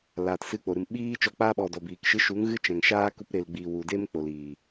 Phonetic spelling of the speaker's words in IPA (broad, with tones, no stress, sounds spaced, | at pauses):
l aː˨ t s ɨ˧ k͡p o˨ ɾ ɨ˨ m ɓ iː˦ t͡ʃ ɔ˧ k͡p aː˦ ɓ ɔ˨ d ɔ˨ b iː˨ k ʃ ɨ˧ ʃ u˨˦ ŋ ɣ ɨ˦ t͡ʃ ɛ̃˨ ŋ ʃ aː˦ k u˧ p ɾ e˨ l ɡ͡b i˨ w u˨ d e˦ m k͡p o˨ l i˨